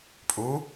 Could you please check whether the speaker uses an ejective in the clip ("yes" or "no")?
yes